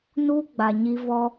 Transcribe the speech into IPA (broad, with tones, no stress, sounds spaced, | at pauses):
n u˦ ɡ͡b a˨ ɲ i˧ v ɔ˦